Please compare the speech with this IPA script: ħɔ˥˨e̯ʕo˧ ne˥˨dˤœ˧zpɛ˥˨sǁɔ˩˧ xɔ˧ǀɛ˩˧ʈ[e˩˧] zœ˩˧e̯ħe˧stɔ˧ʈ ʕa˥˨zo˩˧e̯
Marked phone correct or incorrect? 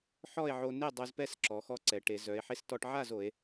correct